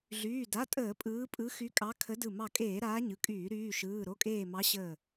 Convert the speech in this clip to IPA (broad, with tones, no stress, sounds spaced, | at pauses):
ɮ yː˩˧˩ d a˩˧˩ tʼ əː˧˩˧ pʼ ɯː˨˦ pʼ ɯ˨˦ x y˨˦ kʼ ɑ˨˦ kʰ ə˨˦ d ɯ˧˩ m ɑ˧˩ kʼ eː˧˩˧ ɾ aː˨˦ ɲ ɯ˩˧˩ kʼ yː˧˩˧ ɾ yː˩˧˩ ʃ ɯː˩˧˩ ɾ o˩˧˩ kʼ eː˧˩ m ɑ˨˦ ɕ əː˧˩